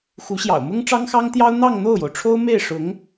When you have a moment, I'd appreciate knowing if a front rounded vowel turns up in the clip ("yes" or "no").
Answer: no